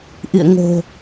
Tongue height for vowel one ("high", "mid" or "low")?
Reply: high